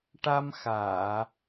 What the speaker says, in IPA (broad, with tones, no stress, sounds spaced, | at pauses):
ʈ a˧ m x aː˨˩˨